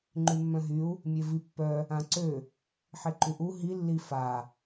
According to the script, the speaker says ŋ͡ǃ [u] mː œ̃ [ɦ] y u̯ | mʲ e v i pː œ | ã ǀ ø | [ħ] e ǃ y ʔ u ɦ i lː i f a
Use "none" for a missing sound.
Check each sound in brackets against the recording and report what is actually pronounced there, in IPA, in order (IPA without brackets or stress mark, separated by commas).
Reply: y, ɦ, ħ